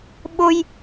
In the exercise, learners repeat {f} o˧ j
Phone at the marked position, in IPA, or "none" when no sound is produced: ɓ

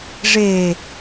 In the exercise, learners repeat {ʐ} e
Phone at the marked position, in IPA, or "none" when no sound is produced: ʐ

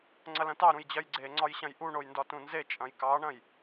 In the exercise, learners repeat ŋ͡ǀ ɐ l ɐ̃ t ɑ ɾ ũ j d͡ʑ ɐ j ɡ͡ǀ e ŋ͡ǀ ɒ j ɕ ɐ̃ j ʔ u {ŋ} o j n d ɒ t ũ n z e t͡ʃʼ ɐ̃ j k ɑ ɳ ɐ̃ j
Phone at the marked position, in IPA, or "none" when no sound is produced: ɳ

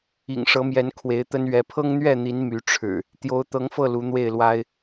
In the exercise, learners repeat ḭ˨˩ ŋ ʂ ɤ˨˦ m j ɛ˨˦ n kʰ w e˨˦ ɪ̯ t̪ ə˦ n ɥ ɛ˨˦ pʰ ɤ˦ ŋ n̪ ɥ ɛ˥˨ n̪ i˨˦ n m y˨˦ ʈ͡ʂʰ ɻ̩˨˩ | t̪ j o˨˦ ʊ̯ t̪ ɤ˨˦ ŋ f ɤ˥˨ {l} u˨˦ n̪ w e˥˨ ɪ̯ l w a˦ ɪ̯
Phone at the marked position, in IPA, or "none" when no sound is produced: l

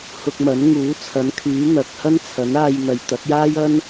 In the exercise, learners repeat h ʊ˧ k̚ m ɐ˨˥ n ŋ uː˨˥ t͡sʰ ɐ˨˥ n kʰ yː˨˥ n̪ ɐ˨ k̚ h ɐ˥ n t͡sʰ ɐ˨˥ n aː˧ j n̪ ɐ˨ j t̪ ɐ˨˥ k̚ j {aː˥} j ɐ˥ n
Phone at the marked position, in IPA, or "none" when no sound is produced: aː˥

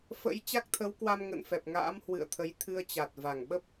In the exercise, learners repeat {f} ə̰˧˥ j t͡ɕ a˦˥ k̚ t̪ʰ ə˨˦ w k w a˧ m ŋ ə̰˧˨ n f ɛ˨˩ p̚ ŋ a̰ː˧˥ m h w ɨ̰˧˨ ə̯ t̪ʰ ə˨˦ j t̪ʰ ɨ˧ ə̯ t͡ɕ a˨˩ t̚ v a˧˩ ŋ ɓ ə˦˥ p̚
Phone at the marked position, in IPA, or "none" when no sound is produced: f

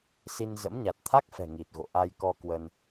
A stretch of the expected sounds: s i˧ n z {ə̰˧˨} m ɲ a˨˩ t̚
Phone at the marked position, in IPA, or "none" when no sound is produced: ə̰˧˥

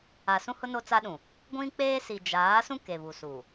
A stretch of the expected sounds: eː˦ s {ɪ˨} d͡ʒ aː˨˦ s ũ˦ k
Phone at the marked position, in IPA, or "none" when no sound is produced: i˨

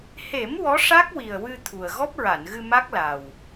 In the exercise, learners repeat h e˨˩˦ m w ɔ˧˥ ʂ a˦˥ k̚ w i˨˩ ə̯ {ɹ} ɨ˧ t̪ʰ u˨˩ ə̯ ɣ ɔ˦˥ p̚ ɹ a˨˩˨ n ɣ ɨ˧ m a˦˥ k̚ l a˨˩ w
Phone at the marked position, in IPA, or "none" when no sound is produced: w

